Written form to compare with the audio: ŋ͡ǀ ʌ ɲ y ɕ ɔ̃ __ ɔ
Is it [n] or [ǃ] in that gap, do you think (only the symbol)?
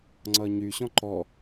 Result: ǃ